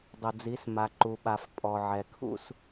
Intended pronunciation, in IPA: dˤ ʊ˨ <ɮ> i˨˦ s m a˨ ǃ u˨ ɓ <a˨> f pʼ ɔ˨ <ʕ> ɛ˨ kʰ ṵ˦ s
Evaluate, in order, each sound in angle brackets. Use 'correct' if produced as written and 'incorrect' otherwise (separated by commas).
incorrect, correct, correct